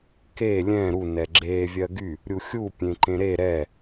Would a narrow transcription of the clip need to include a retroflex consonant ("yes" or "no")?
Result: no